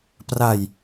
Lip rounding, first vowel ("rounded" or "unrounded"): unrounded